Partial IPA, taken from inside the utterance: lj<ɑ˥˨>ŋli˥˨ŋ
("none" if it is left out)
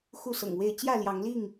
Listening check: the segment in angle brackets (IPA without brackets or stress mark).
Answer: ɑ˨˦